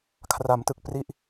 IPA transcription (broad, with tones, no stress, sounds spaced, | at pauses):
kʰ r a˩˦ m t ɯ˨˩ k̚ p r i˦˥ ʔ